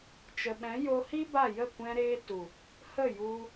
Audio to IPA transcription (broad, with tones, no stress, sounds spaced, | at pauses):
t͡ʃ ə˨ ɓ ɛ̃˨˦ j o˧ h i˦ b a˦˨ j ə˦˨ kʷ ɛ̃˧ ɾ eː˧ t u˨ | h ə˦˨ j u˧